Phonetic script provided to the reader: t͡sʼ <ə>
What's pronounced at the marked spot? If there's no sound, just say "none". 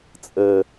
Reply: ə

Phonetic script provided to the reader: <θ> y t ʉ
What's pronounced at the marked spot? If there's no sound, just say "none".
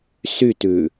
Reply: s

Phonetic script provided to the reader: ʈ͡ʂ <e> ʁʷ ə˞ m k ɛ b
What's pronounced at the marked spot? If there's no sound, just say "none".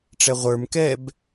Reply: ɛ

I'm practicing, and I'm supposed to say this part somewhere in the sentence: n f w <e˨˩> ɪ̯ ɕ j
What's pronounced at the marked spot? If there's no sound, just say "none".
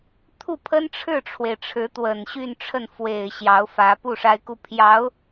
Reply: e˨˩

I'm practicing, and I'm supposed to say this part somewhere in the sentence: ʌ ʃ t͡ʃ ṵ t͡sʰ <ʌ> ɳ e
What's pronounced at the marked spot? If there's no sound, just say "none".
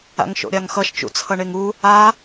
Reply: ʌ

